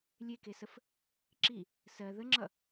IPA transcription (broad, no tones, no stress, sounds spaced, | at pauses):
lʲ e k e s ə f | ǁ i | s ɜ ð ə ŋ͡ǁ ʌ